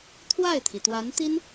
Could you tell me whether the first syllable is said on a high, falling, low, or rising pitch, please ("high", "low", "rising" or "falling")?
falling